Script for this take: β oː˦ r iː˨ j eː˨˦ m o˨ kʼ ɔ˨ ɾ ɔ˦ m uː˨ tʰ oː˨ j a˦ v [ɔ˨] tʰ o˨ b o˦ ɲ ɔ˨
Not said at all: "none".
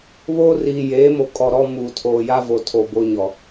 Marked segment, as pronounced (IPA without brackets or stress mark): o˨